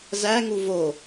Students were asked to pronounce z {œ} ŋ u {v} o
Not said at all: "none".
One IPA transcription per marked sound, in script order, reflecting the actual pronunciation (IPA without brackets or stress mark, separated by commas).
æ, v